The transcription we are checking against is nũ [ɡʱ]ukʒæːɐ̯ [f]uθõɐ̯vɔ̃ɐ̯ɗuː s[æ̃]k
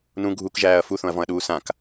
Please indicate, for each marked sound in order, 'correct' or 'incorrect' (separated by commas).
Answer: correct, correct, incorrect